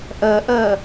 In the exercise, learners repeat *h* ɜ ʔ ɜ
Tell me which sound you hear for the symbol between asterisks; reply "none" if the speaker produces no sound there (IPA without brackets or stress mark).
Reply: ʔ